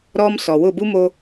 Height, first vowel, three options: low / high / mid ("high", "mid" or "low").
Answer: mid